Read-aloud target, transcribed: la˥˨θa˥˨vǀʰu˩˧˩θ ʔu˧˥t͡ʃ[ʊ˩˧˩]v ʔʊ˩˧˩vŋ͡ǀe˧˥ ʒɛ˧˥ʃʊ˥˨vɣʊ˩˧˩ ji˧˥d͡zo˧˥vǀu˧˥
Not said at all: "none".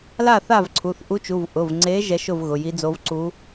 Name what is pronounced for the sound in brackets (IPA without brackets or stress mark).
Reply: u˩˧˩